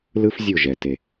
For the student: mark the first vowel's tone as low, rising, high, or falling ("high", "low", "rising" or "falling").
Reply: high